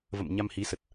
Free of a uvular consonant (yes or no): yes